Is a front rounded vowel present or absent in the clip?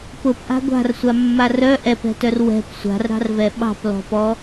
present